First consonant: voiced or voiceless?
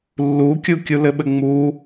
voiced